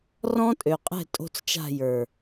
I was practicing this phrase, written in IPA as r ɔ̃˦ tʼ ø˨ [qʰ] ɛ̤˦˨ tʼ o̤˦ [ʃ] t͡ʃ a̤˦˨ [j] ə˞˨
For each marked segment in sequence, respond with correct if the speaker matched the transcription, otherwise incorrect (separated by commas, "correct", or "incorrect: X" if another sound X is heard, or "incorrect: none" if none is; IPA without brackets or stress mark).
incorrect: qʼ, incorrect: t͡s, correct